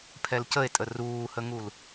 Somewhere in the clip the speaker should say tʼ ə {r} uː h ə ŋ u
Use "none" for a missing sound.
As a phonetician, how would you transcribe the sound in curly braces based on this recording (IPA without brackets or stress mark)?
r